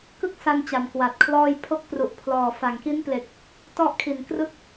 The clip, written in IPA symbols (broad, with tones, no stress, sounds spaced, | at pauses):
k ɯ˥˩ k̚ s a˧ n t͡ɕ a˨˩ m k w a˨˩ t̚ kʰ l ɔː˥˩ j pʰ o˦˥ k̚ p r u˨˩ ʔ pʰ l ɔː˨˩ f a˨˩ ŋ k i˦˥ n p l e˨˩ k̚ | t ɔ˥˩ ʔ kʰ i˨˩ n k r ɯ˦˥ k̚